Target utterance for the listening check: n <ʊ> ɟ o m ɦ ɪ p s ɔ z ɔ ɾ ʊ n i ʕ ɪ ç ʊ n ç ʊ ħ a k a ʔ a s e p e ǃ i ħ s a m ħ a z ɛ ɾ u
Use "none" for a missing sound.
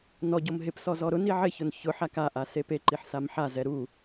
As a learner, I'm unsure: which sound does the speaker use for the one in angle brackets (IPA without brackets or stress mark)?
ɔ